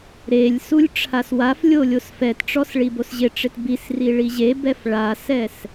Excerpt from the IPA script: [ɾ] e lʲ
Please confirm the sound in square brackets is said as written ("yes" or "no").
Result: yes